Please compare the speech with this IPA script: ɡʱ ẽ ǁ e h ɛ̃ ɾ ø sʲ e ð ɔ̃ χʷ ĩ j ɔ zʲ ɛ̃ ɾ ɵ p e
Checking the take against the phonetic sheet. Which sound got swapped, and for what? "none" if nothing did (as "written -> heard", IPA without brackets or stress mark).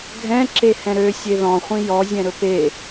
ẽ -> ɛ̃